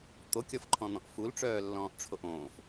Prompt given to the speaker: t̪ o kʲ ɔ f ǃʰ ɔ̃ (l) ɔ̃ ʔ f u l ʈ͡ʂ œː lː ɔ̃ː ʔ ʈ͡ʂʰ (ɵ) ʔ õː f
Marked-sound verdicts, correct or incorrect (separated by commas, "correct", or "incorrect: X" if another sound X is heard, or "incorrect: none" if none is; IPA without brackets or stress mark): incorrect: n̪, incorrect: o